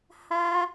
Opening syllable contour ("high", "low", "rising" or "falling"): high